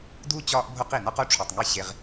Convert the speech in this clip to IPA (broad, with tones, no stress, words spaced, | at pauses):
du˦ t͡ɕɒː˦ʔbʱo˦qi˨ nɒ˦qo˧ ʈ͡ʂʰo˨tˤŋi˦˨ ɕe˦ʁ